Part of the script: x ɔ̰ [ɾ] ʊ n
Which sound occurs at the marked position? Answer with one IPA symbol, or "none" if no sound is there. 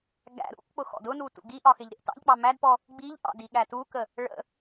d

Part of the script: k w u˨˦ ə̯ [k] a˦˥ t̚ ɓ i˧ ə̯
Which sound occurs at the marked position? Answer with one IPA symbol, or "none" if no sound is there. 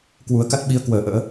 k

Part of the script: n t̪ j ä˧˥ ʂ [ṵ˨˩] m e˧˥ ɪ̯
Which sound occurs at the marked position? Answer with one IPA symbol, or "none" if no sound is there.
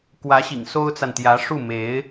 u˥˩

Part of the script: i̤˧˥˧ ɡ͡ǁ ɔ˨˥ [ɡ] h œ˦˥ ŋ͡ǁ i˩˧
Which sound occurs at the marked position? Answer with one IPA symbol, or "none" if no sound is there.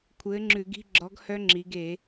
ɡ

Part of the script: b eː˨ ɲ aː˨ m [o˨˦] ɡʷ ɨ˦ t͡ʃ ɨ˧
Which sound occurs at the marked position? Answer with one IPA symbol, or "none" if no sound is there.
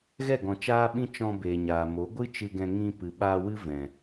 o˨˦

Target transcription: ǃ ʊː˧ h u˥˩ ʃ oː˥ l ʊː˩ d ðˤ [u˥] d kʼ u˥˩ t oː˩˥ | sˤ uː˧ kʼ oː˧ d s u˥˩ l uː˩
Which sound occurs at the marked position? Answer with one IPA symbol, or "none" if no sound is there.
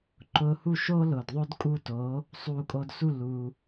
o˥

